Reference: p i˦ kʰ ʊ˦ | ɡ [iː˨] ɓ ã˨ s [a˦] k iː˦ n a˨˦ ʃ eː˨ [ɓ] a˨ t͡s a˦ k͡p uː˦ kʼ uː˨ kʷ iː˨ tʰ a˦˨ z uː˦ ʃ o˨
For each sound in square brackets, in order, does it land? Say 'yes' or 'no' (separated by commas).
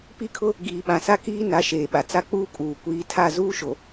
yes, yes, yes